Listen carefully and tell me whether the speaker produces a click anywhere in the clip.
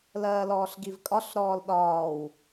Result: no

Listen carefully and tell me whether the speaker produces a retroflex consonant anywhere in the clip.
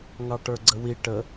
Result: yes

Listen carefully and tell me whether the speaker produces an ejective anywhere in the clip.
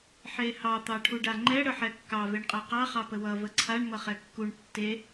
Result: yes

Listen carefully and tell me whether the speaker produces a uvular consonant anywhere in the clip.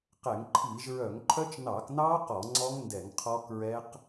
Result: yes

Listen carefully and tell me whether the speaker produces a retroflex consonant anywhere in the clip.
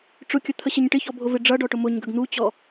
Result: yes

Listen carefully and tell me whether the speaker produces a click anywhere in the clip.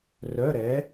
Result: no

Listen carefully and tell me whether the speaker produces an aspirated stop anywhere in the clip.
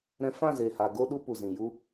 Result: no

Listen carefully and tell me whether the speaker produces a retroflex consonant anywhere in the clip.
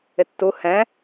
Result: no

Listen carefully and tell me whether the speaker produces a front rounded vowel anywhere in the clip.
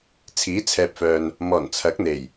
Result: yes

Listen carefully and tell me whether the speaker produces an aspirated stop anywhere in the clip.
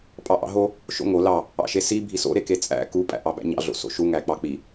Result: no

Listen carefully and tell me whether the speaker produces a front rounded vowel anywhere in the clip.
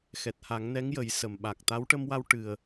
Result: no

